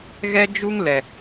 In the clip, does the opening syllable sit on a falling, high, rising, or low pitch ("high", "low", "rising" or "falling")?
high